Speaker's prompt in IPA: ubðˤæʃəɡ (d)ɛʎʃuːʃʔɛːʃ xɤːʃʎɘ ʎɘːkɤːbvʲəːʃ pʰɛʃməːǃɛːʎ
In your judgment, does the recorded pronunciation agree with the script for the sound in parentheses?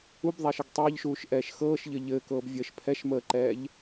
no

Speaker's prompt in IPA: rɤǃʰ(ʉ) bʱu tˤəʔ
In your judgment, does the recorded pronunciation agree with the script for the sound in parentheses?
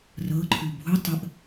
yes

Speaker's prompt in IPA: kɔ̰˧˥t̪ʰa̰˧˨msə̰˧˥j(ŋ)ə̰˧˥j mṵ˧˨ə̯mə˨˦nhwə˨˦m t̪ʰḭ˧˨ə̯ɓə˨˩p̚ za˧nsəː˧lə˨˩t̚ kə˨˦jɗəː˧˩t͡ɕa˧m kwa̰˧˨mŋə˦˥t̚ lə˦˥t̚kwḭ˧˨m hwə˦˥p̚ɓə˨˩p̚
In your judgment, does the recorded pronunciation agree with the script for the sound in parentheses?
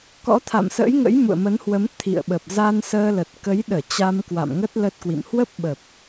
yes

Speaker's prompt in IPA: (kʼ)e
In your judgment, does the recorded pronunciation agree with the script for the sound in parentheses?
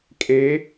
yes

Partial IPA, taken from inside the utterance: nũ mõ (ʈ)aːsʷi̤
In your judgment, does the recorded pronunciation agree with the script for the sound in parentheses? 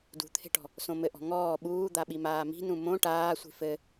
yes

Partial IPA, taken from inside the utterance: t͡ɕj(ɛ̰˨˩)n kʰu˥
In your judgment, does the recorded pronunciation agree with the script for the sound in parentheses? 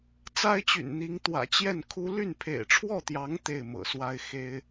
no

